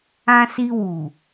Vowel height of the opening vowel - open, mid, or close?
open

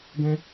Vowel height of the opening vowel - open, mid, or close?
mid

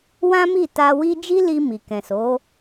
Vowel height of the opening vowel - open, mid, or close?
open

